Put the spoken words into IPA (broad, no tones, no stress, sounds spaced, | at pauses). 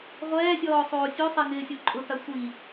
ʁʷ ɛː sʲ ɔː sˤ oː sʲ u sˤ i ŋ ɪː sʲ o ǃʼ ʊ t a sʷ i